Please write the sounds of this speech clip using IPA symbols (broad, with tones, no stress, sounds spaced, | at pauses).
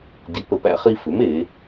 d i˨˥ p ə˨˥ p æ̰˥ χ i˥ f ʏ˨˥ m e˨˥